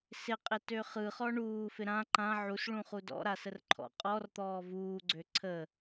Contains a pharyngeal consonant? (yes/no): yes